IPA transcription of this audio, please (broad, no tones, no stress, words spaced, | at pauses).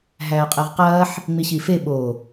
ɦæːqʼeʁqɐːħ | ŋ͡miɕife ɓo